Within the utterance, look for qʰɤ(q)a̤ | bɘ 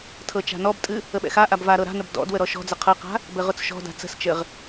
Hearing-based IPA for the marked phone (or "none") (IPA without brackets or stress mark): q